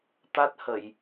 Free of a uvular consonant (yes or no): yes